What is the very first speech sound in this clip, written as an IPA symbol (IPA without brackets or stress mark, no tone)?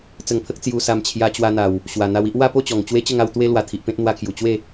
t͡s